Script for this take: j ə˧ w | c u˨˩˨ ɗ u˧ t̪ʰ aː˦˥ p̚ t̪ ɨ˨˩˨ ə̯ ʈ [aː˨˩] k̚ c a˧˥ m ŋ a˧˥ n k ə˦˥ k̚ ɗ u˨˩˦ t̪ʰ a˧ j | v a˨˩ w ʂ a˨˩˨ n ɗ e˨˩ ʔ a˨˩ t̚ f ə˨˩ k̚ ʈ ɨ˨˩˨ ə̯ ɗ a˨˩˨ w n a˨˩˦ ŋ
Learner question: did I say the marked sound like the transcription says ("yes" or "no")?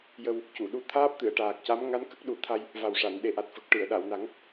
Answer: yes